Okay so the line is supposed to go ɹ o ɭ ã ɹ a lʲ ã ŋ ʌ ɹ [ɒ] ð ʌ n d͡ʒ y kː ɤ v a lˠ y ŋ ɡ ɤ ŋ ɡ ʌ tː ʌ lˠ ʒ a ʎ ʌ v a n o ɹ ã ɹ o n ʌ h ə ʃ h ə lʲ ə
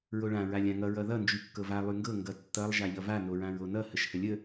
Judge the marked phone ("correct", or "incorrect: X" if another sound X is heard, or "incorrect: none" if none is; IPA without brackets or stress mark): incorrect: ʌ